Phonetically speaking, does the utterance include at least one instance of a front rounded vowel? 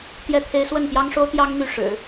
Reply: yes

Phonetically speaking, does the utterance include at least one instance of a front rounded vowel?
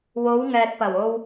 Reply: no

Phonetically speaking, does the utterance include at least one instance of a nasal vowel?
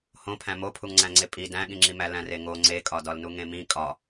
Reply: yes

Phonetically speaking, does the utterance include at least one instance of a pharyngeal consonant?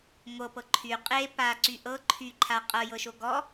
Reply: no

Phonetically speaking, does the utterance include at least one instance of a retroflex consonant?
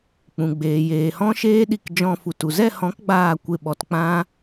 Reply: no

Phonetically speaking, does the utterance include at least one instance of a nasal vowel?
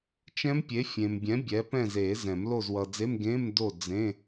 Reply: yes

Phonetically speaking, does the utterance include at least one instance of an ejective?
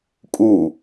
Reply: yes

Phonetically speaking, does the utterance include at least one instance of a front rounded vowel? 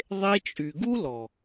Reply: yes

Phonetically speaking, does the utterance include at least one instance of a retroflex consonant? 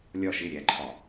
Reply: no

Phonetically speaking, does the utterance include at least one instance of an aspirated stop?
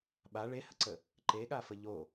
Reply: no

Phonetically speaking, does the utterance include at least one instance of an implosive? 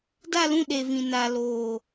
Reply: yes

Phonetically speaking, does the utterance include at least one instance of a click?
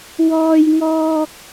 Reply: no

